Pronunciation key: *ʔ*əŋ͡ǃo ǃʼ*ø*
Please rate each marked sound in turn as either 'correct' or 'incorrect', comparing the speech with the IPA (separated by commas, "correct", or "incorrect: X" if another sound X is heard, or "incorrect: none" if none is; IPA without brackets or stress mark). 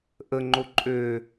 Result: correct, correct